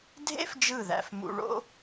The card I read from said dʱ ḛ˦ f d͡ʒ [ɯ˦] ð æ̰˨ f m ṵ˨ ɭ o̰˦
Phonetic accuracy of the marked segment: incorrect: ɯ˦˨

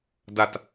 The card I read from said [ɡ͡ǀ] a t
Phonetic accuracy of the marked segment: incorrect: d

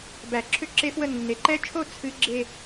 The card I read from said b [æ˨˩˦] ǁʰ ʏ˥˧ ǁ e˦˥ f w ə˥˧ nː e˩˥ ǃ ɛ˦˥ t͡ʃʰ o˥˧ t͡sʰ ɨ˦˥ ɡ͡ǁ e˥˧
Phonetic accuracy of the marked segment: correct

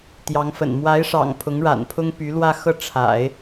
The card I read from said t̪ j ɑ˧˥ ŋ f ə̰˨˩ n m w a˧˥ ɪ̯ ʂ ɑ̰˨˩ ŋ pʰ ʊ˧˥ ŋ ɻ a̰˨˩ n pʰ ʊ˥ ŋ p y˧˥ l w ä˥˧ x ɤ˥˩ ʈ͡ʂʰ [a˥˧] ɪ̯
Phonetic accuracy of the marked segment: incorrect: a̰˨˩˦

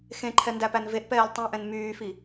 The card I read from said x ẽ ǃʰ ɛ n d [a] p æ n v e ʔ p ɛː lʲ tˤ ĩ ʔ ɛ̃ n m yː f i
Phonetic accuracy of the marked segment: incorrect: æ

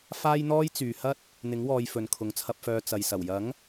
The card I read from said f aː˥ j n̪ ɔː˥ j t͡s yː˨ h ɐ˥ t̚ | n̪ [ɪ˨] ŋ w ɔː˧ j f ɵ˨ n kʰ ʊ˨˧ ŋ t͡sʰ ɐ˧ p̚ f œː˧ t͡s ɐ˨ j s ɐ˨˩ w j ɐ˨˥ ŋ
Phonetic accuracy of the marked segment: incorrect: ɪ˨˥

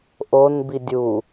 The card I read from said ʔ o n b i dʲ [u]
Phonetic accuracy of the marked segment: correct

